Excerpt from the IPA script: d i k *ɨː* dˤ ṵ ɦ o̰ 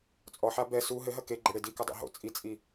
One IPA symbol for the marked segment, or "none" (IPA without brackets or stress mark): ɨ